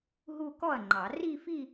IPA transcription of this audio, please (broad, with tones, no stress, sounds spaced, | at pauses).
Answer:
ɦ u˥˧ k ɔ˥˩ ɐ̯ ŋ͡ǃ ɑ˨˩˦ r i˥˧ f i˥˧